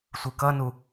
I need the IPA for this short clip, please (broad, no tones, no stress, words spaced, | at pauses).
sʷɯkʌnu